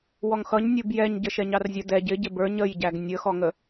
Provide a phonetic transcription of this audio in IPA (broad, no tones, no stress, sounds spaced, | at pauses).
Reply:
w ɔ ŋ x ʌ ɲ nʲ u b j ɛ ɲ ɟ ə ʃ ɛ ɲ ɑ r zʲ ə d ɛ ɟ ɪ ɟ ɪ b ə˞ ɲ ə j ɟ æ ɡ nʲ ə x ɔ ŋ ə